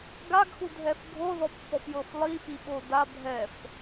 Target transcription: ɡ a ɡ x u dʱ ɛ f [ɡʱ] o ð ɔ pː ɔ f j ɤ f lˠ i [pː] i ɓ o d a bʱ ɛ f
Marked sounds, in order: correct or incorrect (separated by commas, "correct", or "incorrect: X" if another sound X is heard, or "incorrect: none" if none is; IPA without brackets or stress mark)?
correct, incorrect: f